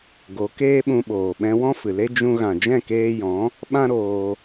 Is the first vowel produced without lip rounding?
no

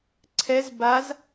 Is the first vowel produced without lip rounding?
yes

